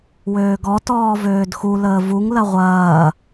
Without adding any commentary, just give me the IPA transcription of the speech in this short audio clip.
w øː ɡ ɔ t ɔː v øː d x u l əː v u ŋ l ɐ ʁʷ ɐː

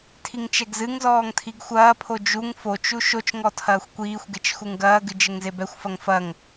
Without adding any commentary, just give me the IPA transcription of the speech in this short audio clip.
tʰ i ŋ t͡ʃ ɛ ɡ z ɨ ŋ z ɔː ŋ tʰ i ɡ xʷ ɐː pʰ o d͡ʒ u ŋ f o t͡ʃ u ʃ o t͡ʃ ŋ ɔ tʰ ɐː xʷ kʷ iː xʷ ɡ e t͡ʃ x u ŋ ɡ ɐː ɡ ɨ d͡ʒ ɘ ŋ z e b ɛ xʷ f ɐ ŋ f ɐ ŋ

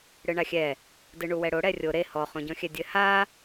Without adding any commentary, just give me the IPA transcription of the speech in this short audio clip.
ɽ ɨ ɳ a xʲ ɛ | d ɨ ɳ u w ɛ ɽ o ɽ ɛ rʲ o ɾ e h ɔ χ õ ɟ ɔ̃ xʲ ɛ dʲ ɘ h a

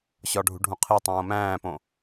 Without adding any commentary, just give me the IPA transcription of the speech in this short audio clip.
ɕ ɒ ɖʱ ṳ ɖʱ ũ qʰ i tˤ õː m æ̃ː p õ

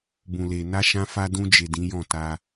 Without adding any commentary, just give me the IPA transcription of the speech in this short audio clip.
b ũ˨ l e˨ n a˧ ʃ ã˧ f a˧ d ũ˧ d͡ʒ e˨ d ĩ˨˦ j ɔ̃˦˨ t a˧

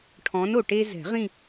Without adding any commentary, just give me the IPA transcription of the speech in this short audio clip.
ʈʰ ɔ̃˨˥ n o˩ ʈ e˧ z ɛ̤˨˩˦ ʁ ĩ˥˧

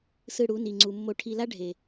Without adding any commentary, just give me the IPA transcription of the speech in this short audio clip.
s ɯ˨ ɽ u˨˦ n i˨ ŋ͡ǀ u˨ mː o˨ ʈʰ i˨ l a˦ ɖʱ e˨

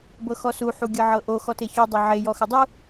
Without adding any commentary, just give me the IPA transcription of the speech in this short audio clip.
b ɤ x ɔ s u ħ u ɡʲ ɤ ʕ ɤ ʔ o x ɔ t e ç u dˤ ɤ ʕ e j ɔ x ə dˤ u

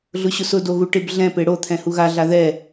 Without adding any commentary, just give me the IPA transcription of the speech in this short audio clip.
ɮ ʊ ɕ ʊ s ʊ d o ɣ u ʈ ɪ b ɮ ɛ̃ p e ɽ o t̪ʰ ɛ̃ h u ɣ a ɮ a ð ɛ

